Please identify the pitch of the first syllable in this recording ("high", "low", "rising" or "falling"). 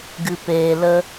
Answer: low